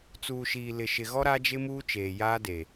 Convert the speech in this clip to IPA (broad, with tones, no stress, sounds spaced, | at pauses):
t͡s uː˨ ʃ iː˨ l ɪ˨ ʃ ɪ˨ ɣ ɔ˦ ɾ a˦ d͡ʒ ɪ˦ m uː˦ t͡ʃ eː˨ j aː˦ d e˨